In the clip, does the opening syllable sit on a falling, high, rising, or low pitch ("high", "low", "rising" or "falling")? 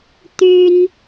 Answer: high